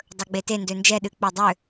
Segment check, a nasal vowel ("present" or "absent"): absent